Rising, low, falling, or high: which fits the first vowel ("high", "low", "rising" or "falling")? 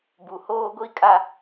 low